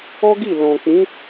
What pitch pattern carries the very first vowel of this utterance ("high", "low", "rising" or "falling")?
high